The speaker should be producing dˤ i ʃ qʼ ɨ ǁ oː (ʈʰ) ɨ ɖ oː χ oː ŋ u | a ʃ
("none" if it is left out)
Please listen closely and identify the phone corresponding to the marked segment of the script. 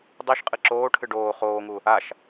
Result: ʈʰ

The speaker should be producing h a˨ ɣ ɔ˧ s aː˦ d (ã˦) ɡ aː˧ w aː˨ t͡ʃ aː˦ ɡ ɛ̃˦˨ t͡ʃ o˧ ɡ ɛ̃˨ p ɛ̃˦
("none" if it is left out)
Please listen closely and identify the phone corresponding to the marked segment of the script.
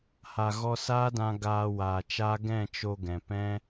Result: ã˧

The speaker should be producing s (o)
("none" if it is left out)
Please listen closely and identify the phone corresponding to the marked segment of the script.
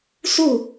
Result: u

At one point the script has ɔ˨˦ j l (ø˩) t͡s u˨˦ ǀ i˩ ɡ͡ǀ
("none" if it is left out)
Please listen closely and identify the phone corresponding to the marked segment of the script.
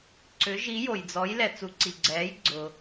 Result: ɛ˩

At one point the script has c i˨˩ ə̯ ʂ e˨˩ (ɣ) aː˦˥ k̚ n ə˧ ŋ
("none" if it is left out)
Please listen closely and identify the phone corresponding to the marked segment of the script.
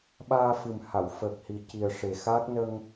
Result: x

